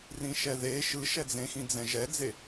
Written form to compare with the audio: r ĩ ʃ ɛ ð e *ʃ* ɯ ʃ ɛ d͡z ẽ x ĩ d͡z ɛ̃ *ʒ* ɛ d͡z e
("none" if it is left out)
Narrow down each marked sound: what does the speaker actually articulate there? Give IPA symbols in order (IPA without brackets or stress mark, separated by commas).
ʃ, ʒ